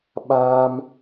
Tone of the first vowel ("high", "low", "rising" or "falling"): high